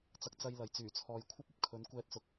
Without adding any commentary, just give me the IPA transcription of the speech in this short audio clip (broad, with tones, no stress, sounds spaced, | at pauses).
t͡s ɐ˧ k̚ t͡s ɐ˧ j l ɐ˨ j t͡s yː˨˩ t͡sʰ ɔː˨ j kʷʰ ɐ˥ p̚ ɐ˨ p̚ kʰ ɵ˨˥ n kʷ ɛː˧ t̚ s ʊ˨˥ k̚